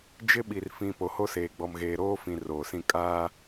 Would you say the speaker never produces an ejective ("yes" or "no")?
no